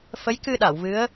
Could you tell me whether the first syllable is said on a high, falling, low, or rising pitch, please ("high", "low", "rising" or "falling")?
rising